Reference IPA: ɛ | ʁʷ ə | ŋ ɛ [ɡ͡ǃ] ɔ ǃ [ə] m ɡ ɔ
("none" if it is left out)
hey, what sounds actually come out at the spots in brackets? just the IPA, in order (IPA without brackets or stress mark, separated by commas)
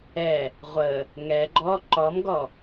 ɡ͡ǃ, ɔ